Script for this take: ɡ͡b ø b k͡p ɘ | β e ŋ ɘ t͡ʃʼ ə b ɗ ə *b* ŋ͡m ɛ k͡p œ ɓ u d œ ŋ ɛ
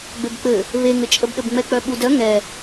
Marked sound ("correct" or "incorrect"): correct